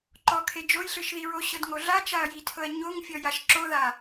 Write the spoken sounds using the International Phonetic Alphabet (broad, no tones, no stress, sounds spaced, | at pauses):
ǃ ɔ kʰ e d͡ʒ o j ɬ ɯ ʃ ð i ɹ o ɕ ɤ d ŋ o ɮ a t͡ʃ a ɐ̯ j i tʰ ɤ ɐ̯ ɲ o ŋ fʲ ɔ j a ʃ ǁ o ð a